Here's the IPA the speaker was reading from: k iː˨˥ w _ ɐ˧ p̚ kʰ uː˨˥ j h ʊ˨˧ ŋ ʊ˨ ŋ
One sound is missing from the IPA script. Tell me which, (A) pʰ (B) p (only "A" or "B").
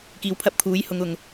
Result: A